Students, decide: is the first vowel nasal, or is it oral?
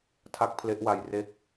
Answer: oral